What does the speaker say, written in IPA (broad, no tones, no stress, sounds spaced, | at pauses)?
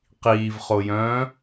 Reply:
q iː v χ o j œ̃ː